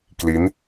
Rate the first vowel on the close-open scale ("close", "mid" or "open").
close